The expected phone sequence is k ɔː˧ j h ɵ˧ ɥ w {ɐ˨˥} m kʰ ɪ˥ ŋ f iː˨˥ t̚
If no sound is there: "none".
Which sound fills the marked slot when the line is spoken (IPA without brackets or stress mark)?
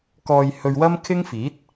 ɐ˥